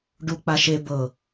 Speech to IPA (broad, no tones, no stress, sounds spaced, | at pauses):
ɖ u k͡p a ʃ e b ɤ